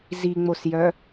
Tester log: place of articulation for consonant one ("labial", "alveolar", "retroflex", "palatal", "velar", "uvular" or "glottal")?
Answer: alveolar